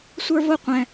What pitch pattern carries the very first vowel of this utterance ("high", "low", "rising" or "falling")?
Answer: high